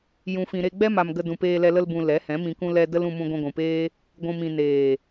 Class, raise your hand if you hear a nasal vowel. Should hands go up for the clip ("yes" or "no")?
yes